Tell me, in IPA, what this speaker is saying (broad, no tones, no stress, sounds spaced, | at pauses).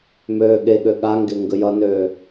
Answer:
m øː ɠ e ɠ ø ɠ a ŋ ɡ e ŋ ɡ ə j ʌ n øː